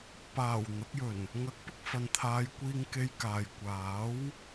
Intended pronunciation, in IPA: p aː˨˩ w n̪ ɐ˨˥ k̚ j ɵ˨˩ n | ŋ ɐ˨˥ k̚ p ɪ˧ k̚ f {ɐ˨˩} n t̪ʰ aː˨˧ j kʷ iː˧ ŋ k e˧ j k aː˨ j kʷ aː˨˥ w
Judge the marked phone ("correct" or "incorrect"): incorrect